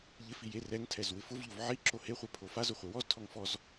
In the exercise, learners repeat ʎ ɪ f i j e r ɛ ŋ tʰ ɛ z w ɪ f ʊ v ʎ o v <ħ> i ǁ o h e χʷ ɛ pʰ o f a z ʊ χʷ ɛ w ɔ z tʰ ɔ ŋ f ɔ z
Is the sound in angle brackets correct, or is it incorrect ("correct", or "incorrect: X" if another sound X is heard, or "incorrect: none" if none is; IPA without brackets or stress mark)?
incorrect: ʕ